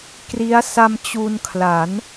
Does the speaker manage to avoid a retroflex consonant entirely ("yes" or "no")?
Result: yes